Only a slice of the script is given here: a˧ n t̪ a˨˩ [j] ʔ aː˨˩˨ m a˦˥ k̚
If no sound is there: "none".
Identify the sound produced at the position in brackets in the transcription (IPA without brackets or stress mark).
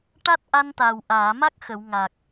w